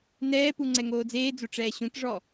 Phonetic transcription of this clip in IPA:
n ɛː p u ŋ͡ǀ ɛ ŋ oː d͡z eː d͡z o ʈ͡ʂ ɛː ɕ ũ t ʐ ɔ

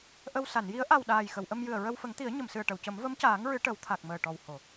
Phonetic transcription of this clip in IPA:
ʔ ə˧ w s a˨˩˨ n j i˧˥ ə̯ ʔ a˨˩ w ɗ aː˨˩ j x ə˨˩˨ w ʔ ə˧ m j ɨ˨˩ ə̯ ɹ ə˧ w f ə˨˩˦ ŋ t̪ i˨˩˦ ə̯ ɲ ə˨˩˨ m s ɨ˨˩ ə̯ ʈ ə˨˩˨ w c ə˨˩˦ m v ə˧˥ m c aː˨˩˦ ŋ ɹ ɨ˨˩˦ ʈ ə˨˩˦ w t̪ʰ a˨˩ k̚ m əː˨˩ ʈ ɔ˨˩ w h o˨˩˨

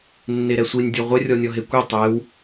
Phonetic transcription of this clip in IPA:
nː e ɾ ɛ sʷ i nʲ dʲ ɔ ʁʷ ɛ rʲ ɔ nʲ ɔ ɦ e kʷ i tˤ e w

